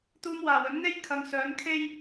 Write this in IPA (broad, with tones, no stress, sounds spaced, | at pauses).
t̪ uː˧ m w aː˨˩ w ɵ˨˥ n n̪ e˥ j kʰ ɐ˨˧ ŋ s œː˨˥ n kʰ e˥ j